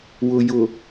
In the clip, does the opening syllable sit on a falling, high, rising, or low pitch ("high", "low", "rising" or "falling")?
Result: low